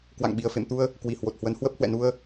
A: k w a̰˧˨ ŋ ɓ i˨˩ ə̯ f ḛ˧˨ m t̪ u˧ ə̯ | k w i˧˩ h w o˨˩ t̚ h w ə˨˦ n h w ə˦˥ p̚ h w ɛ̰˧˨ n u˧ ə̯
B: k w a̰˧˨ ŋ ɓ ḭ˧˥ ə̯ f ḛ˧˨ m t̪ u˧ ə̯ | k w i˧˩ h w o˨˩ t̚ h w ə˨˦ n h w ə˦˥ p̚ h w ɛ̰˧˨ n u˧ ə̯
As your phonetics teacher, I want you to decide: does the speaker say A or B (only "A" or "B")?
A